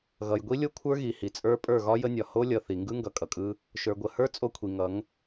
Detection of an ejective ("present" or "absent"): present